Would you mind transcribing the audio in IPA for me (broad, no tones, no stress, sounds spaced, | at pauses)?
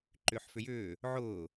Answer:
ǃ ʏː ħ f ʏ j ʏː | ʕ ʊː